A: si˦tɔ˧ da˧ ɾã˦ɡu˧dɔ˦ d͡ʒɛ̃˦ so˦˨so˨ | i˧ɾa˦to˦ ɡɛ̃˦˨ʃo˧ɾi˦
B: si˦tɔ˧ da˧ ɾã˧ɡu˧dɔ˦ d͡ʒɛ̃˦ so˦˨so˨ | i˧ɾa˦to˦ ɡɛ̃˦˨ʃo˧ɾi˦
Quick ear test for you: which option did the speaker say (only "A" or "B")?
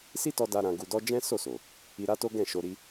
B